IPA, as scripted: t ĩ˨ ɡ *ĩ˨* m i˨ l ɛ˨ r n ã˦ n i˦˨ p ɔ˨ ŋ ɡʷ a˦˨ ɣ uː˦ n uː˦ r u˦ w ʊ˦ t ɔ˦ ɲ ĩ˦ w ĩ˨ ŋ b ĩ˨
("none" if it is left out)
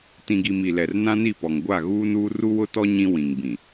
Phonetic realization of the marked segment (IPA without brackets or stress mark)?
i˨